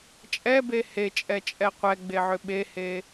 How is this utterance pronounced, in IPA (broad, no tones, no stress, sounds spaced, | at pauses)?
t͡ʃʼ ɛ b e h e t͡ʃʼ ɛ t͡ʃʼ ɛ qʷ ɛ ɡ͡b e ʕ ʏ ɓ e h e